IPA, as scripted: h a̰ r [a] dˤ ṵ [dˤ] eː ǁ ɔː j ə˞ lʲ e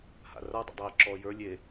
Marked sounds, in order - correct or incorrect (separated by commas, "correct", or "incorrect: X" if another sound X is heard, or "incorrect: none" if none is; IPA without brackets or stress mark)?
correct, correct